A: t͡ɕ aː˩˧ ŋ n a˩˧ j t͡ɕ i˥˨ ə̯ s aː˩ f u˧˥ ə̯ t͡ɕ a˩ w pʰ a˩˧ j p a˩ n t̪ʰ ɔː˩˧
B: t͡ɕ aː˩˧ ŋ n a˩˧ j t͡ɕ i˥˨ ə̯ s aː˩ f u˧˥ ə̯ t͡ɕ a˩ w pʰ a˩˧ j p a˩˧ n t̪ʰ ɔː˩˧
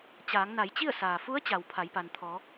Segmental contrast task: A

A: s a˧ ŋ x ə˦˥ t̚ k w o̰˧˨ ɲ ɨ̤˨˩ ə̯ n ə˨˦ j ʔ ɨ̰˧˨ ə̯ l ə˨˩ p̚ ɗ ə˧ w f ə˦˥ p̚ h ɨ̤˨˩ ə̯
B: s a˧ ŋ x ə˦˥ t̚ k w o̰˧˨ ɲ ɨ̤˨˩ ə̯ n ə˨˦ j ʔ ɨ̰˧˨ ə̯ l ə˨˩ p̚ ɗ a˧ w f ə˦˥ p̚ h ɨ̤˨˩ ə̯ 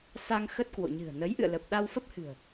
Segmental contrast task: B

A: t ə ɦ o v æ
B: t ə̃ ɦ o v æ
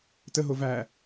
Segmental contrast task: A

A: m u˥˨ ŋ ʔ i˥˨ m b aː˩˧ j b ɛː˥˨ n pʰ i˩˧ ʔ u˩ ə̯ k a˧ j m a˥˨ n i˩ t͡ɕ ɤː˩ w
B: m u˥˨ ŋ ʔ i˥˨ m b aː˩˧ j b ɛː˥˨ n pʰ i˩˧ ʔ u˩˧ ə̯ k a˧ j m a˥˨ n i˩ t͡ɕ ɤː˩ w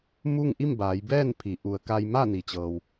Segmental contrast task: B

